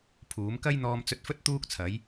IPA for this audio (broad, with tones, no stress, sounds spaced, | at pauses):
pʰ uː˨˥ m k ɐ˥ j n̪ ɔː˧ m t͡s ɵ˧ t̚ f ɵ˥ t̚ t̪ uː˥ k̚ t͡sʰ ɐ˨˥ j